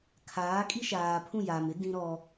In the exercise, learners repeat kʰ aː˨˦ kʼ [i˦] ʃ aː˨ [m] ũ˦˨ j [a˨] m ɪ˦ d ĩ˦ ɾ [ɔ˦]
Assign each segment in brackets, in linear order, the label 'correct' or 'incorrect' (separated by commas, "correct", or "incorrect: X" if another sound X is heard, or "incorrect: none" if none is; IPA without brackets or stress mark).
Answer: correct, incorrect: pʰ, incorrect: aː˨, correct